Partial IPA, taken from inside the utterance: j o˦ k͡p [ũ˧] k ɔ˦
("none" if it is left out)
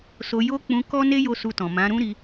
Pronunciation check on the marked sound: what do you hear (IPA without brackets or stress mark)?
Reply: ũ˧